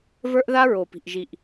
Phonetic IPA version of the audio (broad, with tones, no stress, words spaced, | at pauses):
və˞˦ʔða˦ɹo˨pi̤˨ʔ ʒi˨ʔ